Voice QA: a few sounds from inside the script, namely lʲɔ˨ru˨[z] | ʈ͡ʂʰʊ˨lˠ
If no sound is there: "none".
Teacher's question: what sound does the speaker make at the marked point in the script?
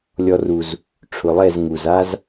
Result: z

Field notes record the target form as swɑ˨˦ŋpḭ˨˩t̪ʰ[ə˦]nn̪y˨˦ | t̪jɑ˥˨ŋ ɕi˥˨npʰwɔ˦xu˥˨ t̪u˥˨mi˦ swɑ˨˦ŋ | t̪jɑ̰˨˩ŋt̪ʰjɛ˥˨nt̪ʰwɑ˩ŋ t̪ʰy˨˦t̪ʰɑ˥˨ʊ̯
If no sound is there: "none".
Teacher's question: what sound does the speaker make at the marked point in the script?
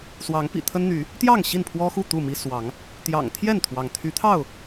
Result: ə˦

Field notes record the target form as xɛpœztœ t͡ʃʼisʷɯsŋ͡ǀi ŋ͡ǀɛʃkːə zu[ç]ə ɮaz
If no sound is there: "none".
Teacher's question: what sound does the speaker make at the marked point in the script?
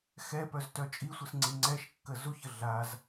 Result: ç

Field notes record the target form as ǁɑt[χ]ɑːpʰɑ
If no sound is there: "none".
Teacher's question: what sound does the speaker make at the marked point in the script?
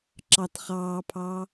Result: χ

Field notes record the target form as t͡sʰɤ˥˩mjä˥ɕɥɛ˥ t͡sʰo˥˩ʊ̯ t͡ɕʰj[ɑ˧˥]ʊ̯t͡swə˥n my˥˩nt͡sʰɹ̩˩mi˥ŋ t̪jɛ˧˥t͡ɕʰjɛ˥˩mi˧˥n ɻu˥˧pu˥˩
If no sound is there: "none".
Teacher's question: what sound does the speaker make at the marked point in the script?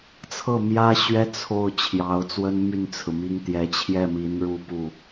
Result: ɑ˧˥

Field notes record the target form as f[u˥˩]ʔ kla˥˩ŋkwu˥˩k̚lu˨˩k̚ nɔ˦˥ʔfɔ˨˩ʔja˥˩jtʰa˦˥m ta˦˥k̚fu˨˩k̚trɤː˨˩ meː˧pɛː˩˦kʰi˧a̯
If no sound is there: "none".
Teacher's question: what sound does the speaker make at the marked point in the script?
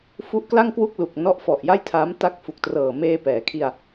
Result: u˦˥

